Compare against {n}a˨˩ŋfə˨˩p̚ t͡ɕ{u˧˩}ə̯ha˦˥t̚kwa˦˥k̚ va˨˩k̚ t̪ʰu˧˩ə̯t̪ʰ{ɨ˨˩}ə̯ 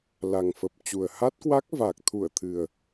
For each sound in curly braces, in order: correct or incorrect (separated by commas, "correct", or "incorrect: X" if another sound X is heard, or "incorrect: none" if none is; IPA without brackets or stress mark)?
incorrect: l, incorrect: u˨˩, correct